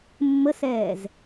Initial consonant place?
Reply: labial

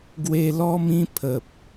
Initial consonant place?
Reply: velar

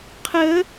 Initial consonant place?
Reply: uvular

